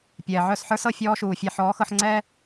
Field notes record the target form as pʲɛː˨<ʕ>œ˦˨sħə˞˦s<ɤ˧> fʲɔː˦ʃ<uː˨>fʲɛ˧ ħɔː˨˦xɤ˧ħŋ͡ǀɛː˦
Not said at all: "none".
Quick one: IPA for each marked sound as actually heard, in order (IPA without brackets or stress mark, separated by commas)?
ʕ, ɤ˧, uː˨